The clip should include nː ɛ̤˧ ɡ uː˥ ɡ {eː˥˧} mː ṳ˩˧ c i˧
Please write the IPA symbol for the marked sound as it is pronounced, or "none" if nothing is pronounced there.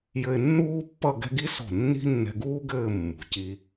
ɘː˥˧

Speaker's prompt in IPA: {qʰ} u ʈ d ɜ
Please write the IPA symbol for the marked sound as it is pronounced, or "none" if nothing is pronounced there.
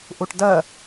ʔ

